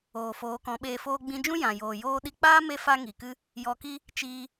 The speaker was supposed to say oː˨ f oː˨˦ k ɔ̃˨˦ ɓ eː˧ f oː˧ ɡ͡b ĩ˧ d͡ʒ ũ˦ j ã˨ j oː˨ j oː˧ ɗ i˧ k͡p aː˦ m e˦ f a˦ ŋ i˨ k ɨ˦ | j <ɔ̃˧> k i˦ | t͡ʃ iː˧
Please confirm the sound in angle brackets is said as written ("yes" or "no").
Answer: no